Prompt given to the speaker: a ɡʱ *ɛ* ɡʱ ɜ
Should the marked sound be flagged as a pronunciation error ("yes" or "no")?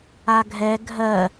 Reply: no